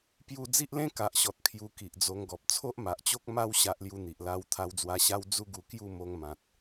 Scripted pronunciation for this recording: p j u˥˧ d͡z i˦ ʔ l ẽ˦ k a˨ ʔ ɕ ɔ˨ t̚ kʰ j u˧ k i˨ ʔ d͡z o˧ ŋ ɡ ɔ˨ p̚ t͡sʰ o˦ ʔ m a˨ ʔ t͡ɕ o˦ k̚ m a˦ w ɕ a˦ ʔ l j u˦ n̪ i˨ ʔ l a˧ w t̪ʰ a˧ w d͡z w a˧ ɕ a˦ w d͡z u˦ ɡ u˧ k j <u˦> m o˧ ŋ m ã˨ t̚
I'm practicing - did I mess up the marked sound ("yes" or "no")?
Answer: yes